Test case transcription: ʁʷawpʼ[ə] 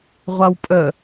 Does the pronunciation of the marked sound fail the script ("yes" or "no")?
no